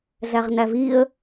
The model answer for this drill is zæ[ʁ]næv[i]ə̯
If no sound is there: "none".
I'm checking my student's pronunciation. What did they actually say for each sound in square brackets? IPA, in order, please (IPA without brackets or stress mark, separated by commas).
ʁ, i